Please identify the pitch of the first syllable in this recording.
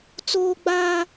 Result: high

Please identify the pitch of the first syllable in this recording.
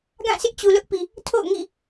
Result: falling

